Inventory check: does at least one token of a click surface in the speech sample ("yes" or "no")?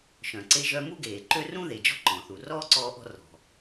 yes